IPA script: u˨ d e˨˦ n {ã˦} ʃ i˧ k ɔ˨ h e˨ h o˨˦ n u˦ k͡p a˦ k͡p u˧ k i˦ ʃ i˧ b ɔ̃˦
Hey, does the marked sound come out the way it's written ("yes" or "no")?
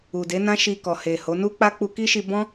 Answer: yes